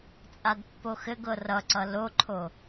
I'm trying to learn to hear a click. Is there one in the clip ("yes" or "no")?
yes